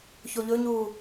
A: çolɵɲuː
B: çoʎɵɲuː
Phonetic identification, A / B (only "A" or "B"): B